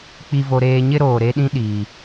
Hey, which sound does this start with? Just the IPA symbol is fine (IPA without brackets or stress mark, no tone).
k͡p